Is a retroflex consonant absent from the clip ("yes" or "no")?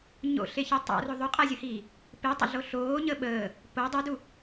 yes